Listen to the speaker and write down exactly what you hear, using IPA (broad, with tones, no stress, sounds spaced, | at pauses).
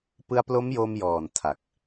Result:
p ɯ˧ a̯ p l o˦˥ m j o˧ m j ɔː˨˩ n tʰ a˨˩ k̚